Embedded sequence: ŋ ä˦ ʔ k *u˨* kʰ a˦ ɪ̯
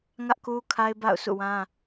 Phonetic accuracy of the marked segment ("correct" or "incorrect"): incorrect